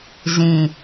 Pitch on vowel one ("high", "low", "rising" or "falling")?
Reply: low